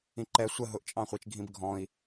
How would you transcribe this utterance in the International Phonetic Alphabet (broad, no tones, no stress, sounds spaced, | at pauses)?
ĩ ǃ ɛ sʷ ə ɦ ʊ ʔ t͡ʃʼ ɑ̃ χʷ i t͡ʃ ɡʱ ĩ b ɡʱ ɔ̃ i̯